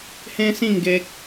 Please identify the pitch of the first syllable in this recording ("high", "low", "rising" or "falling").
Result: high